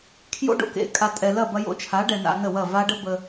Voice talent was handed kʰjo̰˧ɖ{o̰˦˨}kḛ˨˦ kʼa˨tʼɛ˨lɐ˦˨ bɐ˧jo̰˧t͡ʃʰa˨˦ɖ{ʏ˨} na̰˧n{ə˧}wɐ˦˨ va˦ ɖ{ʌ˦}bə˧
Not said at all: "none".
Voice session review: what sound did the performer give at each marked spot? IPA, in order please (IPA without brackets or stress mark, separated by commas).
o̰˨, ɛ˨, ə˦˨, ə˦